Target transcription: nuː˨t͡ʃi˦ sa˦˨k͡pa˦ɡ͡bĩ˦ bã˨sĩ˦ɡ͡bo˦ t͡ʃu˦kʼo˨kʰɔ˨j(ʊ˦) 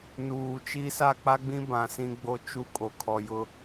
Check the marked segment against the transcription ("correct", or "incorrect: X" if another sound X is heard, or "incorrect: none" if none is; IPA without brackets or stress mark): correct